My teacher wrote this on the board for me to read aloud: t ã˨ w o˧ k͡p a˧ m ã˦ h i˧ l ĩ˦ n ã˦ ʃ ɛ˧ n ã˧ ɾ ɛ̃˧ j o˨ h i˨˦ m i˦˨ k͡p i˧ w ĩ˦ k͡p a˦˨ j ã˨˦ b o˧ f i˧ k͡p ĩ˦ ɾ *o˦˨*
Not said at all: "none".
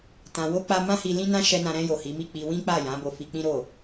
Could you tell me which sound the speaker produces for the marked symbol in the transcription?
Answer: o˦˨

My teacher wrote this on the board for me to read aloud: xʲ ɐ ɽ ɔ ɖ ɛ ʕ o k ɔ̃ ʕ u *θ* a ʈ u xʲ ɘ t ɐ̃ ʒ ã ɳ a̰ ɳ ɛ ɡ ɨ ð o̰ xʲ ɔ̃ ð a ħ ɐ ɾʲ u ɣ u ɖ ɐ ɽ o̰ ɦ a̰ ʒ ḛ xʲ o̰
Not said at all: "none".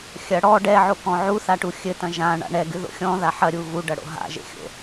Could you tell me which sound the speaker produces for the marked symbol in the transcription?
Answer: θ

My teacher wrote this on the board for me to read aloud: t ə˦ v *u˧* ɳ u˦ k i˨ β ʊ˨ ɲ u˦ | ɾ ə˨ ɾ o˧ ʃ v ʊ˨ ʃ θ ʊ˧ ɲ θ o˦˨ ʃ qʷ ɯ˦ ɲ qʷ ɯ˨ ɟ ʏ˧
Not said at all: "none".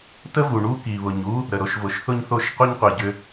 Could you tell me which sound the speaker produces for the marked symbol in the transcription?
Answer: u˨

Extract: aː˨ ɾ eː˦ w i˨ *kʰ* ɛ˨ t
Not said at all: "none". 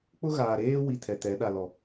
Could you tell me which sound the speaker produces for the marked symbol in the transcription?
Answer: tʰ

